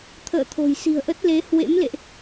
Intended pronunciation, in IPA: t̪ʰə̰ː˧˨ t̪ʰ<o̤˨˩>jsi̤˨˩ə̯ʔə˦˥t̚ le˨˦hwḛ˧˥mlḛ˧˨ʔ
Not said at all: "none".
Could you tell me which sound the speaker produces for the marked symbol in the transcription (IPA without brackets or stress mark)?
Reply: o̤˨˩